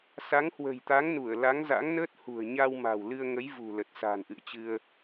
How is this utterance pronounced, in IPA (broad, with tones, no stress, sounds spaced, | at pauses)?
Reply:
s a˨˦ ŋ h w ə̤˨˩ j t̪ a˨˦ ŋ n u˧˩ ə̯ l a˨˦ ŋ z a̰˧˥ ŋ n əː˦˥ t̚ h ṳ˨˩ ə̯ ɲ a˧ w m a̤˨˩ w l ɨ˧ ə̯ ŋ ə˨˦ j v ṳ˨˩ l ə˨˩ t̚ s a̤˨˩ n ʔ ɨ̰˧˨ ə̯ t͡ɕ ɨ˧ ə̯